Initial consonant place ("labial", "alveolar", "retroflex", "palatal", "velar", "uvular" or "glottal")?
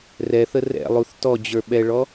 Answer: alveolar